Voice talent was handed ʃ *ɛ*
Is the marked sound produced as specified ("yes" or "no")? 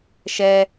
yes